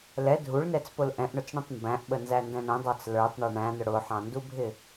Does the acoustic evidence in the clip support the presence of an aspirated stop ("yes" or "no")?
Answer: no